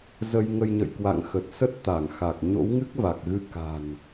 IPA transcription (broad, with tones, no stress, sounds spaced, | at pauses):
z ə˧ j ŋ ə˧ j ɲ ə̰˧˨ j k w a̰˧˨ ŋ x ə˨˩ t̚ s ə˦˥ t̚ t̪ a˧˩ ŋ x a˨˩ k̚ ɲ o̰˧˥ w ŋ ɨ˦˥ k̚ v a˨˩ k̚ ɣ ɨ˧ k a̤˨˩ n